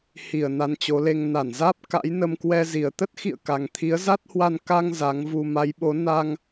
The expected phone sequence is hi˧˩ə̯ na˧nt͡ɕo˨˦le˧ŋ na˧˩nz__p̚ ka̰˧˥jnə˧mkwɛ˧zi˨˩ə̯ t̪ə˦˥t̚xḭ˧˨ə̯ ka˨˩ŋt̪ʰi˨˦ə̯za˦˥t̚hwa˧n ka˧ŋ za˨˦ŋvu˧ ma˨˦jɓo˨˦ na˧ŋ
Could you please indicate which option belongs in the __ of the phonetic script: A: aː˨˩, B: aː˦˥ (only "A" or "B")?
B